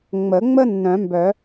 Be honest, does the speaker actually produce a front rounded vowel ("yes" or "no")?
yes